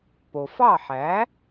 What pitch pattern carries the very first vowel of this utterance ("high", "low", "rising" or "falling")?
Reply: low